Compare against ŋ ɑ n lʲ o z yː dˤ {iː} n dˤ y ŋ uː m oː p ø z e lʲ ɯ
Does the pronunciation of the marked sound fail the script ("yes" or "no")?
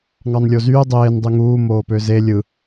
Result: yes